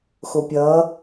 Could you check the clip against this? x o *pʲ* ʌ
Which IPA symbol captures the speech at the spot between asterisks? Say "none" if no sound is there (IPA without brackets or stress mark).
pʲ